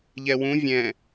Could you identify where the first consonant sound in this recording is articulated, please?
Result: palatal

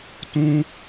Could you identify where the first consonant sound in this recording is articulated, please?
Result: alveolar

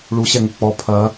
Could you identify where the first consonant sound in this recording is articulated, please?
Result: retroflex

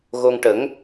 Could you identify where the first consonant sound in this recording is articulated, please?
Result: velar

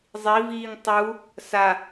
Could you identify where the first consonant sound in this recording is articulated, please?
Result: alveolar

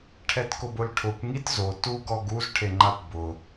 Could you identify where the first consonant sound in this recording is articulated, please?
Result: retroflex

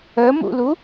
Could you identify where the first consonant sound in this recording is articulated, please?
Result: labial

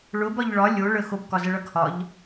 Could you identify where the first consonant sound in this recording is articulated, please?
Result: retroflex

